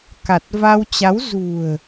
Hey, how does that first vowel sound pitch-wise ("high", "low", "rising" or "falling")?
low